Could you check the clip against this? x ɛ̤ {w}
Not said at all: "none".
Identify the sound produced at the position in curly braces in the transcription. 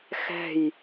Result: j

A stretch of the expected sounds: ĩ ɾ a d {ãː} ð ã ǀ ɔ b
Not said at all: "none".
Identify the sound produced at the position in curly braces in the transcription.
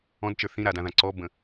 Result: ã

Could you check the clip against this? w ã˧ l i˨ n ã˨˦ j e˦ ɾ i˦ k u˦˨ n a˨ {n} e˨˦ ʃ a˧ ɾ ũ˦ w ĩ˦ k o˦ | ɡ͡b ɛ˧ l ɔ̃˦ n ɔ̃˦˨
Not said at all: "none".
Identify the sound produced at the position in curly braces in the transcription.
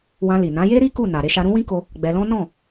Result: ɾ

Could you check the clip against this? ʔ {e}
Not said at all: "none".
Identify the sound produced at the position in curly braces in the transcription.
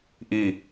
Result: i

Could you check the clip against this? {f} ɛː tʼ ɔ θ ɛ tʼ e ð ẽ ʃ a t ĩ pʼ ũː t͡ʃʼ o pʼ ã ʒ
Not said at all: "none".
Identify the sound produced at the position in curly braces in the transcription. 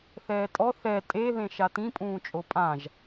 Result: θ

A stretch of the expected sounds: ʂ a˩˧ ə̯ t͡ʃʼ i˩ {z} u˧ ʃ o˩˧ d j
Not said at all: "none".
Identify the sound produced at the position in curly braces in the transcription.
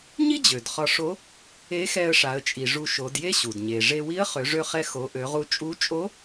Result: ʐ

